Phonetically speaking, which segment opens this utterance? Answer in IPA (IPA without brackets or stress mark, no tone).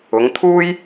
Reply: ʊ